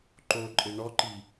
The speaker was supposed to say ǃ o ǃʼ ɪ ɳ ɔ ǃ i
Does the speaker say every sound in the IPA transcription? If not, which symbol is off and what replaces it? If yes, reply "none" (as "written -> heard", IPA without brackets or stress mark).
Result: none